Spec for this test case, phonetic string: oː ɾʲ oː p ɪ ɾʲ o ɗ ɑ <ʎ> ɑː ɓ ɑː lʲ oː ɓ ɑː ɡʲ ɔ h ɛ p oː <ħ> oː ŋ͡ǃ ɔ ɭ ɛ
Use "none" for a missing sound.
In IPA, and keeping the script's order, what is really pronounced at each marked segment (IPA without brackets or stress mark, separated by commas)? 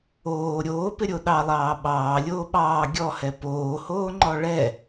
lˠ, h